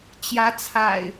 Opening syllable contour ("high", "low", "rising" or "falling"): rising